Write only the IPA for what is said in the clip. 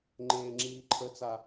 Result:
ŋ͡ǃeːŋ͡ǁiːǃʰət͡sa

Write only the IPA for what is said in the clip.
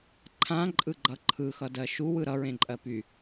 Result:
ǃʰãǃʼɯɡ͡ǃʌ ǃʰɯxʌdɜ ʃuwɯ ɾʌɹẽǃʼɜ py

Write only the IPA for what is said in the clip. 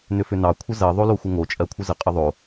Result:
nʏfʏnɑ kʷʰəzɜ ðˤoloxʷəŋo t͡ʃʼɜkʷʰəzə qʼəðˤo

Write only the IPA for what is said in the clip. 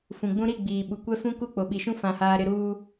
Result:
fũ˨ɡ͡bũ˦ ɾi˦˨ ɡ͡biː˨ɓu˨ kʷɛ˦fũ˦ ku˦˨k͡po˨ɓi˨ʃũ˦ fã˨haː˨ɾɪ˨ɾuː˨

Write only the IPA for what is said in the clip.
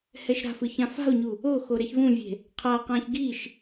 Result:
hɛʃɾa̤fɯ çãfa̤o̯ɲu | oxo ɾɛçvũvʲe̤ | qʰaqãç ɡiʃ

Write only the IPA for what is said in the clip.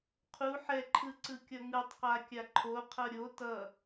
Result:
qʰu ħɛǃʰɯǀɯ kʲʌŋɯtˤqakʲa ǃʰo qʰʌɾʲo tʌ

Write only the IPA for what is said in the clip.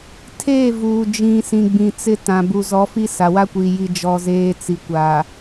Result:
tʰeː˦˨vuː˨ d͡ʒĩ˨sĩ˨ ɡ͡bĩ˨t͡sɪ˦tã˨ bu˨zɔ˨˦fi˦ sa˨wa˦kʷi˨ ji˦d͡ʒɔ˦zeː˦ t͡si˨kʷa˨

